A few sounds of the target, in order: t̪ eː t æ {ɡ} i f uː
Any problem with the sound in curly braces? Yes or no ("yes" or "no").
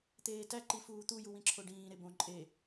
yes